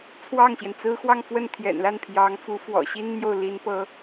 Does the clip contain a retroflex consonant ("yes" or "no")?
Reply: no